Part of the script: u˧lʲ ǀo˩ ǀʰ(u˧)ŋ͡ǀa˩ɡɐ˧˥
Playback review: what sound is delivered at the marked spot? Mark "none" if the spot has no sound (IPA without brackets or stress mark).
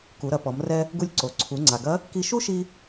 u˩˧